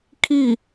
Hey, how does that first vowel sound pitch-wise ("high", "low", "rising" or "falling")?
falling